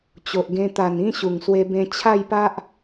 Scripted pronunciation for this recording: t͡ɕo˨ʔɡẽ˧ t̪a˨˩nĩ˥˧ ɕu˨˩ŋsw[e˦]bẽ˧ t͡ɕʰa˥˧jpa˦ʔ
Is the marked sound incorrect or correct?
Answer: incorrect